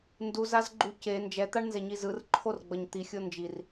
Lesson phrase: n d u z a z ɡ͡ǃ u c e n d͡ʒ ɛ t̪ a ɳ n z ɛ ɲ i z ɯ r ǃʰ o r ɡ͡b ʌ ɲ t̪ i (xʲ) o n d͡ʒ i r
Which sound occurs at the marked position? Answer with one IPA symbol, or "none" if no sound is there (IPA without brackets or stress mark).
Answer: xʲ